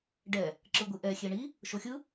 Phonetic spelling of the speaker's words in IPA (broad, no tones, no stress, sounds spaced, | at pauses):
ɖ ɛ | ǁ ɯ ɡʷ i ʔ ɛ xʲ e ɳ i | ʃ o xʲ ɯ